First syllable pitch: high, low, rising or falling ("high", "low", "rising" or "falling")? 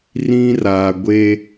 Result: high